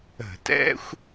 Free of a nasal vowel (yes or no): yes